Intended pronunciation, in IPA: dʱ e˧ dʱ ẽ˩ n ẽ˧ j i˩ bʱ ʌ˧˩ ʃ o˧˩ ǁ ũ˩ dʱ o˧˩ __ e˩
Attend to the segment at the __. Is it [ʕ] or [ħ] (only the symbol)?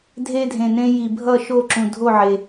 ʕ